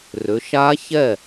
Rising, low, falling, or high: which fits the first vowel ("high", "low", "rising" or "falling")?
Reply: rising